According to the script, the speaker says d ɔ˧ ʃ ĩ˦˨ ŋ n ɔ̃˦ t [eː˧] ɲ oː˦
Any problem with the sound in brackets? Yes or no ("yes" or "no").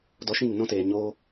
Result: yes